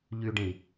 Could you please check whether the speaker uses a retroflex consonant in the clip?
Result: yes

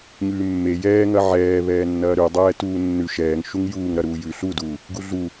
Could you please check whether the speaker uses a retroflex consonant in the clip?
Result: no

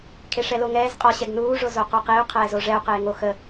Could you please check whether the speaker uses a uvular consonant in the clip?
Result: yes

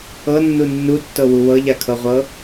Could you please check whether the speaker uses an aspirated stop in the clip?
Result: yes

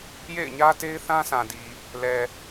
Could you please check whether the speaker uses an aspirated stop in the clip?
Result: no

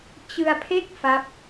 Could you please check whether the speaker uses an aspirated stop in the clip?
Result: yes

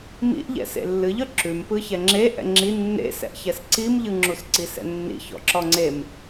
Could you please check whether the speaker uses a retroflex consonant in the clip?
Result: no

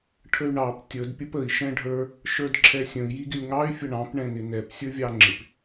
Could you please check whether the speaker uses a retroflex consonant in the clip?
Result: yes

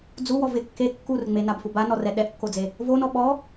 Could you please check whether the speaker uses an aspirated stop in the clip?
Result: no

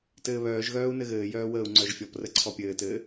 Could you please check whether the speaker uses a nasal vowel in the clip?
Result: no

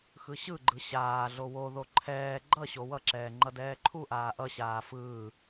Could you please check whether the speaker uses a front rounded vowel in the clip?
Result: no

